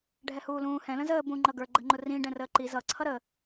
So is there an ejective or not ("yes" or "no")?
no